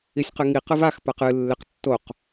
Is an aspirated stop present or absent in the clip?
absent